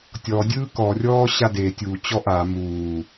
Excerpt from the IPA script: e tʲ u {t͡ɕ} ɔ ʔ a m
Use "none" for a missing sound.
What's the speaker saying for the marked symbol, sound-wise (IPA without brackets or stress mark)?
t͡ɕ